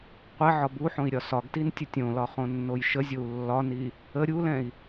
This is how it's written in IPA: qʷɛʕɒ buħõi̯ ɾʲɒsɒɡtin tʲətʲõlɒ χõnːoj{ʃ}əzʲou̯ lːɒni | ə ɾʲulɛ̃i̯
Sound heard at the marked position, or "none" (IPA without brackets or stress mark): ʃ